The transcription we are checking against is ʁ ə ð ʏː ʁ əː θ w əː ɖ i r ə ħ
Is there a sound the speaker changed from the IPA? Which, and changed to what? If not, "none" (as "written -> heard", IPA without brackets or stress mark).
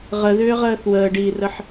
none